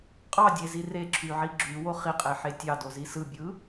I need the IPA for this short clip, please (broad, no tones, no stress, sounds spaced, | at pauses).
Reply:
qʼ ɑ dʲ e z i r e ǁʰ y ʕ i ɡ͡ǁ y w o χ i qʼ e ħ e tʲ ɑ d o z i s ɯ bʲ ɯ